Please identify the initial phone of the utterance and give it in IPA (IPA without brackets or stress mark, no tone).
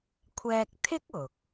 kʷʰ